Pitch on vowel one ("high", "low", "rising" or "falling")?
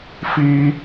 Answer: high